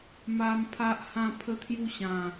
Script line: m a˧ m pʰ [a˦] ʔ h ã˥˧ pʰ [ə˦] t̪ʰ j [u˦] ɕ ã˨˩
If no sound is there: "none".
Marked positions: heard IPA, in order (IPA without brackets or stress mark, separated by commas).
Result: a˦, ə˦, u˦